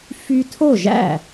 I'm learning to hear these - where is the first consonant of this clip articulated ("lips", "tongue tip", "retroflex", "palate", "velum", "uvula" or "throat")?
lips